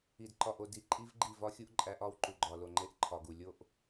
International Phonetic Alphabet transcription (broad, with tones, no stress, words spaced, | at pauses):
i˨d ǃɒ˨ʔo˨ di˨ ǃʼi˦vɡ͡ǃi˦˨vɒ˦xʲu˦ʔ ǃʼæ˦ʔɒ˦w ǃu˨ɡ͡ǃɒ˨lo˨ŋ͡ǃe˦˨ʔ ǃʰɒ˨ɡu˨ lʲo˦ʔ